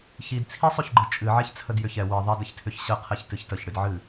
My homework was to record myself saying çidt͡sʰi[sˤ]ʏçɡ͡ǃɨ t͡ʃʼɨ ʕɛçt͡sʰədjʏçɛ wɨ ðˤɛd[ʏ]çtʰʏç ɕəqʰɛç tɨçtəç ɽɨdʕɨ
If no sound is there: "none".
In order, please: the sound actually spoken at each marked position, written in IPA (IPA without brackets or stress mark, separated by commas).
sˤ, ə